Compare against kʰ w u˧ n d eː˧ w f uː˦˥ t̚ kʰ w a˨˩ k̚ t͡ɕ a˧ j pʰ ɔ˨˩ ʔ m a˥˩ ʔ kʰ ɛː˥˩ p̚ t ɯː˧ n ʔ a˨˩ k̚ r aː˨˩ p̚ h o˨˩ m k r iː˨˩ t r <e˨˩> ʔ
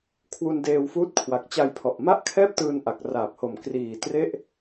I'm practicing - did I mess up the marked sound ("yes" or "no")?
yes